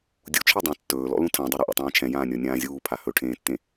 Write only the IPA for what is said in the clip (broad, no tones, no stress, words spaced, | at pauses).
dʲut͡ʃʰe dˤãtːɵːlɔ̰ lũtʰãdˤe ɾɛʔṵtˤãːt͡ʃʰɛ̃ jãːnʲɔnʲãːzʲuː pʰahɵʈʰẽːtːẽ